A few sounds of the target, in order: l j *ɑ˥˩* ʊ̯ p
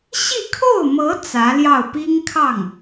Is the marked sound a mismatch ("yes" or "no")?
no